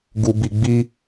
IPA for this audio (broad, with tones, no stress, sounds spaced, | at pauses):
ɡ u˨ b i˨ ɡ͡b i˦